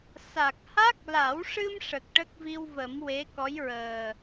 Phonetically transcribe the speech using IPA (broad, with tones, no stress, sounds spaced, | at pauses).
s a˨˩ k̚ h a˦˥ k̚ l a˨˩˦ w ʂ ɨ˧ m ʂ ə˨˩ k̚ ʈ ə˦˥ k̚ v i˧ w v ə˨˩˦ m w e˧˥ k ɔ˧˥ j ɹ əː˨˩